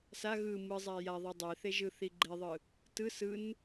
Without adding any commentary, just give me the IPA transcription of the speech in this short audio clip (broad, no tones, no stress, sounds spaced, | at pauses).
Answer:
s a ɣ ɯ m ɯ zˤ a j a ðˤ e dˤ e θ e ʒ ɯ θ i ɡ͡ǃ e ðˤ ɯ | t ɯ s ɯ n